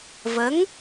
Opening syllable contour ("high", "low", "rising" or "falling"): rising